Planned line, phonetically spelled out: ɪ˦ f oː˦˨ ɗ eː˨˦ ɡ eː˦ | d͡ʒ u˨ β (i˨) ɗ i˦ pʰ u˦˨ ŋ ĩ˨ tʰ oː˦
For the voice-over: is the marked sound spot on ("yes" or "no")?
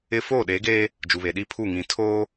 no